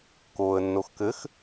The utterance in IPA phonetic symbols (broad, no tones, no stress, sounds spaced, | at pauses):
k oː ə̯ nː o x k ɘ x